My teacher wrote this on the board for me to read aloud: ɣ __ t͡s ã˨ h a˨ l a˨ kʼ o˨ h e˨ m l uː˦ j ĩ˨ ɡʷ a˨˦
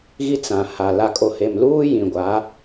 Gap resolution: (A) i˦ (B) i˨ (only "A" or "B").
A